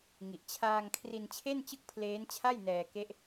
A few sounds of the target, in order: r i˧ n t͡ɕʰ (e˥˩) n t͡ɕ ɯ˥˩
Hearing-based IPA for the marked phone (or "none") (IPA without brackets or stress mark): e˥˩